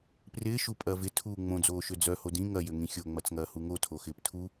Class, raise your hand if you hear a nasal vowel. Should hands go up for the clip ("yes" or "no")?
yes